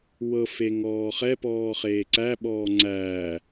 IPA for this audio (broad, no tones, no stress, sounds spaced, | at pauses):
w ɤ f e ŋ ɔː χ ɛ p ɔː χ eː ǀ æ ɓ ɔː ŋ͡ǀ æː